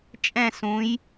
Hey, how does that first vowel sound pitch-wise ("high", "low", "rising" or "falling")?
falling